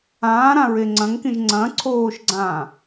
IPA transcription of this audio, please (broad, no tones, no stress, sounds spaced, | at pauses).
ãː ɾ ã ɹ e ŋ͡ǀ ɐ̃ ŋ k ĩ ʒ ŋ͡ǀ ɐ̃ ǀʰ oː ʃ ɡ͡ǀ ãː